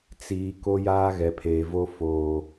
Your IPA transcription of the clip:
t͡s iː˨ k o˦ j aː˦ ɣ ɛ˨ pʰ eː˨ v o˦ f oː˦

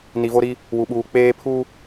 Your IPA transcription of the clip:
n i˨ v o˦ ɾ i˦ | w u˨ ɓ uː˨ k͡p eː˦ pʰ u˦

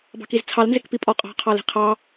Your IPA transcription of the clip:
b ɑ̤ k i z t͡sʰ ɑ l n z ɪ k p i pʼ ɔ qʼ ɑ̤ qʰ ɑ l i̤ qʰ ɑ

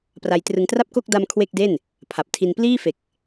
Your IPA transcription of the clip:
p r a˧ j t r ɯ˧ ŋ t r a˥˩ p̚ k o˥˩ k̚ d a˧ m kʰ w e˥˩ k̚ d e˥˩ n | pʰ a˨˩ p̚ tʰ i˧ n p l iː˥˩ f e˨˩ k̚

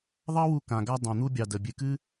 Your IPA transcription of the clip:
ðˤ ɑ˦ w u˧ k ã˨ ɡ a˦ dˤ ã˧ n̪ u˦ bʲ ɑ˧ d ə˨ bʲ ɨ˨ k ɨ˦

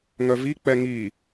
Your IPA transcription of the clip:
ŋ œ v i k͡p ɛ ŋ i

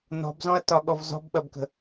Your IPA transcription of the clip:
n ɔ̤ b z ɔ̃ ɐ̯ t ɒ ɠ ɔ v z ɔ̤ b ɓ ɐ b k ə̤

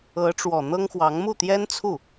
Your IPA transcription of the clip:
ɤ˧˥ ʈ͡ʂ w ɔ˨˩ n̪ ɤ˥ ŋ x w ɑ˧˥ ŋ m u˥˩ t̪ j ɛ˥ n t͡sʰ u˥˩

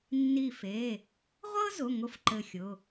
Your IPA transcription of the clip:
nː i˧˩ f e˩˧˩ | ʁʷ ɤ˥ z ʊ˩˧˩ ŋ ʊ˨˥ f ǃ ɘ˧˩ xʲ ʊ˩˧˩

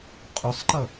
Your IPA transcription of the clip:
qʼ ʊ sˤ ǃ ʌ

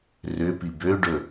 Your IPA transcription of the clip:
r ʏ p i b ø ɖ ɵ

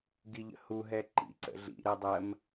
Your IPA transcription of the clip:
ɡ i ʎ ə̰ h u ɦ ɛ ǃ ḭ ǀ ə̰ ɮ ḭ ɾ ɜ dˤ ɜ m

